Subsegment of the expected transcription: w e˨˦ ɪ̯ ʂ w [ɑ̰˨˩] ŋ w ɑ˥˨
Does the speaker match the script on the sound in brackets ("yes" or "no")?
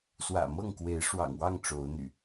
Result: yes